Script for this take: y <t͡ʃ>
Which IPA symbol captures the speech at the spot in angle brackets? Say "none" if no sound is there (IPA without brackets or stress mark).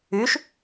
ʃ